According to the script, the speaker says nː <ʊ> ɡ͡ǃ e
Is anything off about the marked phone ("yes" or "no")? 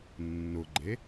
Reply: no